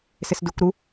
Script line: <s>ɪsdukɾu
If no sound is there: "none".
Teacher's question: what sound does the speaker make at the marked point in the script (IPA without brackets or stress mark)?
s